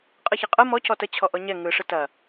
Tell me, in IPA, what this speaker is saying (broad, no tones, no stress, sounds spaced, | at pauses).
qʼ ɯ ç ɐ qʼ ɯ m ɔ c ɔ t ə t͡ɕʰ ɔ ʔ ɔ ɲ ɛ ŋ ɯ ʂ ɯ t ɐ